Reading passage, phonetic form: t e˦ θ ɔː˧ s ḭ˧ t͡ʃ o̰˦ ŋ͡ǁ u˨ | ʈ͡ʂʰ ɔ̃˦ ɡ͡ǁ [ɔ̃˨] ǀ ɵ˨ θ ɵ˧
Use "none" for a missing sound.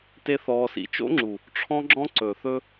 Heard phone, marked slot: ɔ̃˦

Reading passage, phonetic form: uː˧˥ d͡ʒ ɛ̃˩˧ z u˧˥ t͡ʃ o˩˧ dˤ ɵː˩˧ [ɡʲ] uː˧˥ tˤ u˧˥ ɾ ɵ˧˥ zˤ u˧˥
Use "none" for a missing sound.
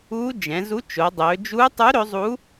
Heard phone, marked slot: d͡ʒ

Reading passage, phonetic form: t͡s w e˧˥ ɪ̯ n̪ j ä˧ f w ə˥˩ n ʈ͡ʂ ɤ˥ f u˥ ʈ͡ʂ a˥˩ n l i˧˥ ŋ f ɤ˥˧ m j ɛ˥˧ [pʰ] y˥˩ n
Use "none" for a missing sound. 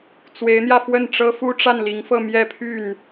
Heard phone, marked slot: pʰ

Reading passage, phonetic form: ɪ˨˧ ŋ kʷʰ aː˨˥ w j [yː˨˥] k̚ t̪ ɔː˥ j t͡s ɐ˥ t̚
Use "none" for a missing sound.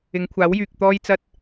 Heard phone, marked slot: yː˨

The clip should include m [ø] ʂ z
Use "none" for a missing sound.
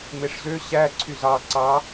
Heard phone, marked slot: e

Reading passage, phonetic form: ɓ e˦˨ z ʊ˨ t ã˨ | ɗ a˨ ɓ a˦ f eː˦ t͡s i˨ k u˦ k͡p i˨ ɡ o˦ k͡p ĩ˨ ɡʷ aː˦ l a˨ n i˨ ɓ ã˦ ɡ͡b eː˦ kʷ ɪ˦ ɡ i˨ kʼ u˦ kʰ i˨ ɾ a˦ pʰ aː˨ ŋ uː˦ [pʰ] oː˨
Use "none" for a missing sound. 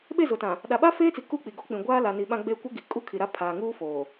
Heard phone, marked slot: f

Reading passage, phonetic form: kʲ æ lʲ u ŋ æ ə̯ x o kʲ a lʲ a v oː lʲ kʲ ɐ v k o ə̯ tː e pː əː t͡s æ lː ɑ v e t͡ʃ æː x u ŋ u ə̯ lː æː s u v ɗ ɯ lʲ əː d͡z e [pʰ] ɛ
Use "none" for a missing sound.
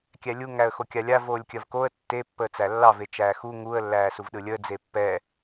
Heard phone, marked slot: pː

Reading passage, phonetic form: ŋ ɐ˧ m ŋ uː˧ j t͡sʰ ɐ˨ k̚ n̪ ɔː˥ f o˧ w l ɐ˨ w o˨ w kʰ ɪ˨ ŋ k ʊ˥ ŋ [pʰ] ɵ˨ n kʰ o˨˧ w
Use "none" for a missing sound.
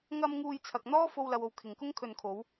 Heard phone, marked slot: kʰ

